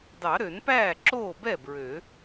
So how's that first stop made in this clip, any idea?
plain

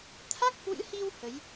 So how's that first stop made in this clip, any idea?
aspirated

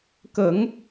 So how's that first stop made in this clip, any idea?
plain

